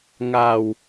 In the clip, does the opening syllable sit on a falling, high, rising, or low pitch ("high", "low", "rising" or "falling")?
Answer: low